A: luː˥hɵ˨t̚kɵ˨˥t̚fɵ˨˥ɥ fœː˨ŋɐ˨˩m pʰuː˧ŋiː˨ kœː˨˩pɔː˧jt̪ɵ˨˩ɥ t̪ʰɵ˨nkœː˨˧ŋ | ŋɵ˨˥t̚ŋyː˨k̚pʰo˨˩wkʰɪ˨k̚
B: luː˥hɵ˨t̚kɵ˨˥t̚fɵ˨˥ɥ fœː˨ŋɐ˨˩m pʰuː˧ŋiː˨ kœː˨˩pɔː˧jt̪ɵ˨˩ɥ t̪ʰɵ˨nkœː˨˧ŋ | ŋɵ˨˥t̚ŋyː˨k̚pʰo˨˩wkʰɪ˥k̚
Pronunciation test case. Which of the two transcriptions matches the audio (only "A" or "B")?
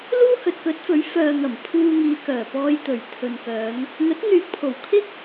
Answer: B